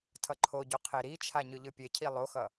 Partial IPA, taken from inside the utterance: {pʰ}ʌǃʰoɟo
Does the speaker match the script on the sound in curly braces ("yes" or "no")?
no